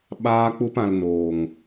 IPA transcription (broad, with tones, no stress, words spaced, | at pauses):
ɓaː˦k͡pu˦pã˧l noː˨ŋ